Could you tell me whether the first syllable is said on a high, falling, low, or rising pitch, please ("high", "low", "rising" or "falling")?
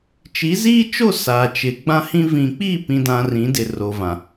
rising